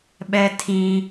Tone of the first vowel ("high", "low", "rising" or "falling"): low